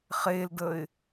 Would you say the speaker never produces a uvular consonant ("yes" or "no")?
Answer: no